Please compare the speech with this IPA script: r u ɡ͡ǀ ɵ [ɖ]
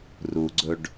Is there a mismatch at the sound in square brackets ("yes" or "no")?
no